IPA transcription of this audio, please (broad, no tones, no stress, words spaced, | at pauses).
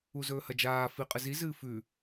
uzɵːhɐd͡ʒaː fiqʼɨ zi zɨːfʉ